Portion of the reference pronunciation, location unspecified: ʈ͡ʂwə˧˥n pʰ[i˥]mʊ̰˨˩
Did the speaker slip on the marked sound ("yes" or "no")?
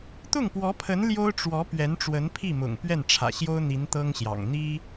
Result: yes